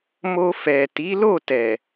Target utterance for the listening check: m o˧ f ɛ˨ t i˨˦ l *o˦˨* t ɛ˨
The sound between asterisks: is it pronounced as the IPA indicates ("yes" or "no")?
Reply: yes